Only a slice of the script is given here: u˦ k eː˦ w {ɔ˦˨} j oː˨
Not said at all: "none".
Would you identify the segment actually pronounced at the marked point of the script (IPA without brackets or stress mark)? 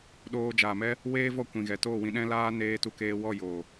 ɔ˦˨